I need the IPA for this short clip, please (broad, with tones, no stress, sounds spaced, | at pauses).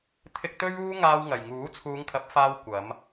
t̪ʰ ɪ˧ k̚ t̪ ɵ˥ ɥ uː˥ ŋ aː˧ w ŋ ɐ˨ j ŋ uː˨˥ t͡sʰ uː˨˧ ŋ kʰ ɐ˨˥ p̚ f aː˧ w kʷ ɐ˨˧ m